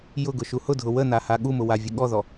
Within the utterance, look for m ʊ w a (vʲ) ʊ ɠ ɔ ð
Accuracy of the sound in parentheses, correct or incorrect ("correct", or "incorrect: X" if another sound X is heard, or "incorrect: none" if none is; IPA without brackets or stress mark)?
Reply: correct